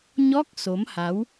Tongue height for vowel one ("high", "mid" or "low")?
mid